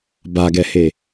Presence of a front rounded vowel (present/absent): absent